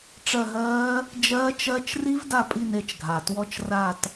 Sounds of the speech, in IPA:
ʈ͡ʂ ɜ˦˨ ɦ ɜː˦˥ | d͡ʒ ɜː˦˥ t͡ʃ ɜ˦˥ t͡ʃ r i˦˥ v d a˦˨ pʼ i˦˨ n e˦˨ t͡ʃ ɡʱ a˩ t w ɔ˦˨ t͡ʃ r a˦˨ t

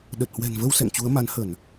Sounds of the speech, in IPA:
ɗ ə˨˩ t̚ h w ɛ̤˨˩ n v ə˧ w s ɛ̰˧˨ ŋ t͡ɕ u˨˦ ə̯ m a˨˦ n h ə˧˩˨ n

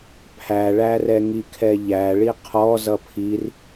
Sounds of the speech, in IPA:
pʰ æ ɭ æ r ɛ ŋ i kʰ ɛ ʎ æ ɭ i qʰ ɔ z ʌ pʰ i r

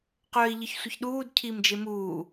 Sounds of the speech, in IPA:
q œː i̯ ʎ ɨ ç sʷ ə ç ɗ uː d cʰ iː m d͡ʒ e m uː

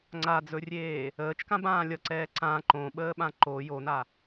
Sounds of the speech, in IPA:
ŋ͡ǀ a d͡z ɵ rʲ eː | əː t͡ʃ k ã b ãː lʲ ʌ ǀ ɛː ǀ ã ǃ õ ɓ əː ɓ ã ǃ o j o n a

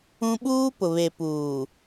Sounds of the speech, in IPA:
ũ˦ ɓ uː˦ p ʊ˨ β e˨ p uː˨

